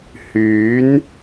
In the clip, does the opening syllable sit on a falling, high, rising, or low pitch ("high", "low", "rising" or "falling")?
rising